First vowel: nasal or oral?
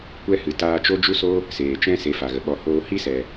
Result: oral